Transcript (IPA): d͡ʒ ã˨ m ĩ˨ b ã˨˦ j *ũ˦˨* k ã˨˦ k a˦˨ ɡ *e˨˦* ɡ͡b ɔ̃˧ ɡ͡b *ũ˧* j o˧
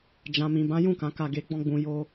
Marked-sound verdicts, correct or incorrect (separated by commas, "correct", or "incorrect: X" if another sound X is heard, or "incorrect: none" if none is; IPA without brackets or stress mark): correct, correct, incorrect: ũ˨